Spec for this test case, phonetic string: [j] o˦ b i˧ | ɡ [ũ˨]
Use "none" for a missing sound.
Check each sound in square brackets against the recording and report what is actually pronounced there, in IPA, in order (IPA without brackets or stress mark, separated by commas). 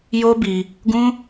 j, ũ˦